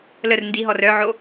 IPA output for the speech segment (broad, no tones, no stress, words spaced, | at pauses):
lər ndiɦɔr œʕo